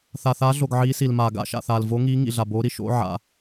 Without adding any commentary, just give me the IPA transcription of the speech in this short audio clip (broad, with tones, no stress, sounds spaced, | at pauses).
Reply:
θ a˩ θ aː˨˦ ɮ o˩ ɡ ʕ iː˨˦ s i˩ l m aː˩ ɡ a̰˨˦ ʃ a̰˩ θ aː˩ l v o˨˦ ŋ iː˨˦ ŋ ḭ˩ ɮ a˩ b oː˨˦ ɾ i˩ ʃ o̰˨˦ ʕ a̰˩